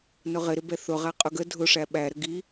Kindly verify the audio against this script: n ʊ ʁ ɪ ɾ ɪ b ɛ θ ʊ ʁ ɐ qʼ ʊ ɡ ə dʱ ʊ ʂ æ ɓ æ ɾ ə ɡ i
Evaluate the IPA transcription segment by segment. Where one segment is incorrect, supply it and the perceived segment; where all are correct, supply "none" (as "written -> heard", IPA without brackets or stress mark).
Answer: ɐ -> æ